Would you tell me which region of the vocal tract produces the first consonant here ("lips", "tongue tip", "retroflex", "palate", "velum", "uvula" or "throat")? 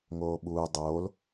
velum